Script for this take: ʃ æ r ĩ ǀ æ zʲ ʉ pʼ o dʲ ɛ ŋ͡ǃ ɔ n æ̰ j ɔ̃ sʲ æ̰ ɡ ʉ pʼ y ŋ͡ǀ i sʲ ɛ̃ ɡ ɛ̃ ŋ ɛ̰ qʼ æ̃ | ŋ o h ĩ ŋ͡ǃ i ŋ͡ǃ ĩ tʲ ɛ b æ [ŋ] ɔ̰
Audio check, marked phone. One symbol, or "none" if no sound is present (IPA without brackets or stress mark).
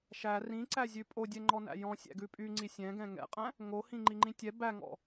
ŋ